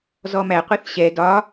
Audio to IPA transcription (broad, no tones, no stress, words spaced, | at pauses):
zɔmæ qʷiθɕɛ dɒ